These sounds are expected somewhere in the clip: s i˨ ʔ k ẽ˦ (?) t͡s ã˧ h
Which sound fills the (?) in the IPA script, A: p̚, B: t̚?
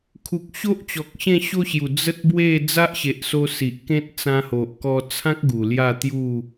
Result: B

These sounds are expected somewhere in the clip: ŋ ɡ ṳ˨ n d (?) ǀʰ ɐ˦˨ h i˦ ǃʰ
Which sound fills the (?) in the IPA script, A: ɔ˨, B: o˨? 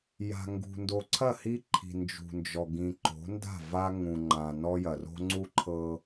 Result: B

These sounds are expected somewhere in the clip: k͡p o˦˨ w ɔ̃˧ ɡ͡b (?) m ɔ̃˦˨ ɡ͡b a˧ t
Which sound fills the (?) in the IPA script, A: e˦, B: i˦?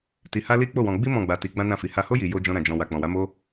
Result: B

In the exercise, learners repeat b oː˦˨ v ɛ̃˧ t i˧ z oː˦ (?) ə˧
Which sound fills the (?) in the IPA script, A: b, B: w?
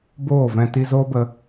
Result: A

